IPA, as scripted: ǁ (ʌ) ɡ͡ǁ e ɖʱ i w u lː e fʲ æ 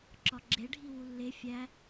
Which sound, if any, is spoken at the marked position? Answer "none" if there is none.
ɒ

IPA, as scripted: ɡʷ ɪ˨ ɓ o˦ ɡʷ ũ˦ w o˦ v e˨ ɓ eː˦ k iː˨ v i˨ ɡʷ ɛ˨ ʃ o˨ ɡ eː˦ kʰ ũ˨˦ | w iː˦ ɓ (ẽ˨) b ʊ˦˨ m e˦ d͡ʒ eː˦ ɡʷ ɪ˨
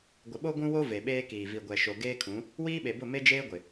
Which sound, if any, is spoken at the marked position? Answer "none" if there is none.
e˨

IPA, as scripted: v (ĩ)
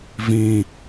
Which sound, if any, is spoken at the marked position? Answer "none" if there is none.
ĩ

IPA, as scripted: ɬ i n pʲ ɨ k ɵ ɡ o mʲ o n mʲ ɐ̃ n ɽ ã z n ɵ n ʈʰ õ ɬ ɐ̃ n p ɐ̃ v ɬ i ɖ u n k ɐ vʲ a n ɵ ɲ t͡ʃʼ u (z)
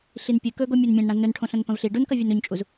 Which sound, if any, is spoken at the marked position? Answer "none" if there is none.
z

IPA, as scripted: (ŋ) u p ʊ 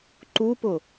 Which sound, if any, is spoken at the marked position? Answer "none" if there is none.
ǃ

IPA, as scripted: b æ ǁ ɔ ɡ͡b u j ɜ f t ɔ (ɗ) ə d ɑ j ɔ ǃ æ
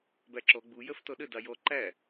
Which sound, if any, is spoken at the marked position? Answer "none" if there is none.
ɗ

